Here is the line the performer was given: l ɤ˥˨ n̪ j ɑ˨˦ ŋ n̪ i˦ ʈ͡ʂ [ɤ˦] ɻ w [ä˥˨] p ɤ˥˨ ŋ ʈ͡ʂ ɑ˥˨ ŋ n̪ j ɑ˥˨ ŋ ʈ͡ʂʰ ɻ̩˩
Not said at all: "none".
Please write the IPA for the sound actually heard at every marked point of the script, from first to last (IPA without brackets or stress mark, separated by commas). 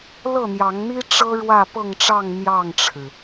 ɤ˦, ä˥˨